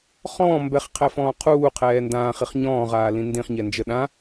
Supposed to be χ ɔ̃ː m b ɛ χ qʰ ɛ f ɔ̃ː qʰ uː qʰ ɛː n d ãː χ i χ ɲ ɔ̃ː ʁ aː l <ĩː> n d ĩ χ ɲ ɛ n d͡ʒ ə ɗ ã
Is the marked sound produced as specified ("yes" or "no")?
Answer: no